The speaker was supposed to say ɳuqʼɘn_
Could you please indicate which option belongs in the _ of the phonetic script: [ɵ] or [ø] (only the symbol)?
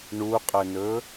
ɵ